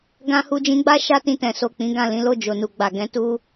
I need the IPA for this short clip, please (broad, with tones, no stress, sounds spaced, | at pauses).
ɡ ã˧ h u˧ d͡ʒ ĩ˧ ɡ͡b a˦ ʃ a˦ t ĩ˧ t ɛ̃˨ s o˨ k͡p ĩ˨˦ ɡ ã˦˨ l ĩ˨˦ l o˦˨ d͡ʒ o˨ n u˨ ɡ͡b a˨ ɡ ɛ̃˨˦ t u˦